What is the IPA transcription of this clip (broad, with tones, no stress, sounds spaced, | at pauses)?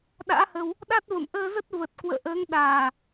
ɗ a̰ː˧˥ h ə˧ w | ɗ a˦˥ t̚ v ə̰˧˨ m ʔ əː˧ z ə˦˥ t̚ v ə˨˩ t̚ k w ə̰ː˧˨ ʔ əː˨˦ ŋ ɗ aː˨˩